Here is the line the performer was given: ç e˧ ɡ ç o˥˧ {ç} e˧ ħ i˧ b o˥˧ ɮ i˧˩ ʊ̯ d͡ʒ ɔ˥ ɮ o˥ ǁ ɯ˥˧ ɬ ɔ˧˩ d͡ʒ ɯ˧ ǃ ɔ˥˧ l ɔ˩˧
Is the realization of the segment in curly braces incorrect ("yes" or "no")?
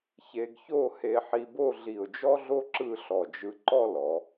yes